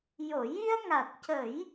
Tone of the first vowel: low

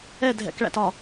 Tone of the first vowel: falling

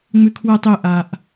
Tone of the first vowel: low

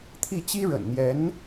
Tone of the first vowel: falling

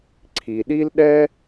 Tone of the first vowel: low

